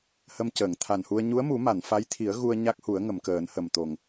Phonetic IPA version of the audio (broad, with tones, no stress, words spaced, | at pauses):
hə˧mcəː˨˩˨ŋt̪ʰa˨˩nhu˧ə̯ ɲu˧˥ə̯mu˨˩˦ma˨˩˨n fa˧˥jt̪ʰi˨˩˦ə̯ ɣu˧ə̯ ɲa˦˥k̚hu˨˩˦ə̯ŋə˨˩˨m kəː˨˩˦nhə˨˩mt̪o˨˩ŋ